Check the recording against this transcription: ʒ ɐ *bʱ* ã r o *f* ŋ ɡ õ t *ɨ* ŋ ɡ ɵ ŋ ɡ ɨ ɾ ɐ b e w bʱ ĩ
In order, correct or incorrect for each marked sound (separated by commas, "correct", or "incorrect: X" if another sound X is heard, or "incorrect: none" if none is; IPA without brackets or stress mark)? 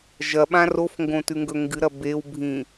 incorrect: ɓ, correct, incorrect: ʉ